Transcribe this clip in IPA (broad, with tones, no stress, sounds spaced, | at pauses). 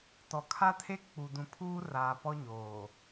t ɔ˨ kʰ a˦ tʰ e˦ k͡p u˨ d ũ˨ pʰ uː˦ r aː˨ p ɔ˦ ɲ oː˨